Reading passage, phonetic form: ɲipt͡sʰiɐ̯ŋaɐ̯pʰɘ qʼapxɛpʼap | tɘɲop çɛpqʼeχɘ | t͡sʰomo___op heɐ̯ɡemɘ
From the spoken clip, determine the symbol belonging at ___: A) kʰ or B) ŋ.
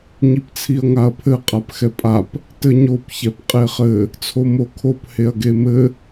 A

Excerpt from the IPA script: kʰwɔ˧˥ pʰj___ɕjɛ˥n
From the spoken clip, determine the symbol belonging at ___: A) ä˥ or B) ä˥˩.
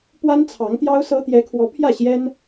B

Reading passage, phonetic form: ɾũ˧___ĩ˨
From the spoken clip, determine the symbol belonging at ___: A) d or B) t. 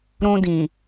A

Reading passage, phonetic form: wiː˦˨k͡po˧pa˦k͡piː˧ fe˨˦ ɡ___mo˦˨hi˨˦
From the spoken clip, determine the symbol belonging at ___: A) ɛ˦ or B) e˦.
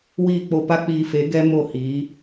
A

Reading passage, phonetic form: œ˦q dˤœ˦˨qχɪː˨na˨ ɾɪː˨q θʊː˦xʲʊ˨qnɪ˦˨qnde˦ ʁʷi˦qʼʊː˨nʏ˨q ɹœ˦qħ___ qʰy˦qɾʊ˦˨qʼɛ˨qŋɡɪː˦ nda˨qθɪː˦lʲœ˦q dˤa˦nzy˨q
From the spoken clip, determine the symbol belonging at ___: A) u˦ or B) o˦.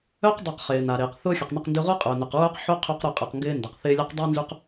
B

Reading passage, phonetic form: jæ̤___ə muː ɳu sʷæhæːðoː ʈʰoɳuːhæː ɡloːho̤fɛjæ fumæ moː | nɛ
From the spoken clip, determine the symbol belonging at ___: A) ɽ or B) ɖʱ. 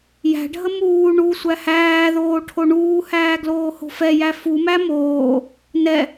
B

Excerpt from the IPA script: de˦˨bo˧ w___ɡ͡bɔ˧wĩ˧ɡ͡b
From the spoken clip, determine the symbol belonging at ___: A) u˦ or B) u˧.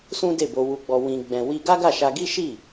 B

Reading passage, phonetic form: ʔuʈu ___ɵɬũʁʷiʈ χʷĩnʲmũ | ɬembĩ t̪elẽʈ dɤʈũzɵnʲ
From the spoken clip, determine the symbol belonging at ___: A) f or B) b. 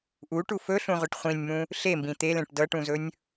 A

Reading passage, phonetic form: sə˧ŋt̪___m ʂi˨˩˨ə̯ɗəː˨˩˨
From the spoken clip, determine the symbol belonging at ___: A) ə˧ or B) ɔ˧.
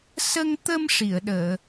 A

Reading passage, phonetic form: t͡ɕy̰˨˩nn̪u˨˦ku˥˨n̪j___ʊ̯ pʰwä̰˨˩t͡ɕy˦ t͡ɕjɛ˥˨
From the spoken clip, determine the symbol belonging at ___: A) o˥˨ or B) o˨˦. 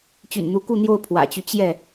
A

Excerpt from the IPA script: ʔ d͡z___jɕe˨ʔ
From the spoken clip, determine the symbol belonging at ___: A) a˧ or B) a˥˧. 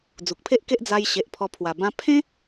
A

